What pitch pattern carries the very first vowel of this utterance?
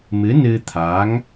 rising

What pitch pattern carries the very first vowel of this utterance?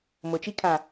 low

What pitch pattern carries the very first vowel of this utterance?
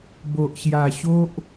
low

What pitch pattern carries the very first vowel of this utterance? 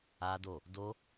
high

